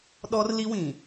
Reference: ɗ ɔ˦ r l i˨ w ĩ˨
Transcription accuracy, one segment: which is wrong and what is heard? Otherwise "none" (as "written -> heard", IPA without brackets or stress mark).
i˨ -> i˦